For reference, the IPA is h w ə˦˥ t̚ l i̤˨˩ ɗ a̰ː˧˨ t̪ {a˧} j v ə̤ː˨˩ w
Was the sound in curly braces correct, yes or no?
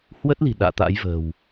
no